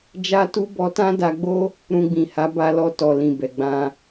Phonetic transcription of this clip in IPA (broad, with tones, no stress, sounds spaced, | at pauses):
d͡ʒ a˦ t u˦ b ɔ˧ t ã˦ d a˧ ɡ͡b o˦ | ɾ ũ˧ ɡ͡b ĩ˨ h a˨˦ b a˧ l ɔ˧ t ɔ˨ l ĩ˨ b ɛ˨ ɡ͡b ã˧